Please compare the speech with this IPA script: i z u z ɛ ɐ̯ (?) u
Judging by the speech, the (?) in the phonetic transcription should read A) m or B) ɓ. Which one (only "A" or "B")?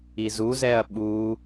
B